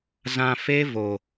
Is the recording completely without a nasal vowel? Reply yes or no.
no